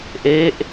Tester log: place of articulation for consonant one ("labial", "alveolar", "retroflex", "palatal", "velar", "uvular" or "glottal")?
glottal